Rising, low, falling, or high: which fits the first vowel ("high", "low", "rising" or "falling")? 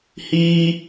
high